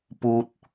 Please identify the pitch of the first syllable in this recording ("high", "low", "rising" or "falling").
high